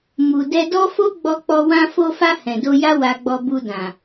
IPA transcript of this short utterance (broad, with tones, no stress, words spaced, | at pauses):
mu˨dɛ˧ dɔ˦fo˦ ɡ͡bɔ˧k͡pɔ˧ wã˧fo˧fa˧ hɛ̃˨do˧ja˦ wa˧ɡ͡bɔ˧ bu˧dã˨